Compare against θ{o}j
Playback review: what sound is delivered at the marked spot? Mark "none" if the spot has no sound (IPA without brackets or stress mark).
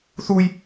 u